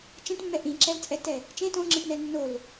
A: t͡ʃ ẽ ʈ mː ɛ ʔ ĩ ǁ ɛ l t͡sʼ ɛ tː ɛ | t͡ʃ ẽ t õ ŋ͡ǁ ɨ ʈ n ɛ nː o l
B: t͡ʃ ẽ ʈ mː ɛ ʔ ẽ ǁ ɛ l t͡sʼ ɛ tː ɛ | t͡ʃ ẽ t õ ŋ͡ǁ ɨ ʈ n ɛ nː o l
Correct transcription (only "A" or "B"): A